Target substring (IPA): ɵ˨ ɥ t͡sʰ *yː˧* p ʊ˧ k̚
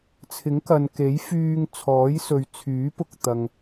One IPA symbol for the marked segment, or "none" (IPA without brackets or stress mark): yː˨˥